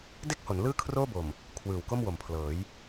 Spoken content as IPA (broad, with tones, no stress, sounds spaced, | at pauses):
d e˥˩ k̚ h o˩˦ n l ɯː˥˩ kʰ r oː˥˩ b o˨˩ m | kʰ w ɯː˨˩ w k o˥˩ m w o˩˦ m pʰ l ɤː˩˦ j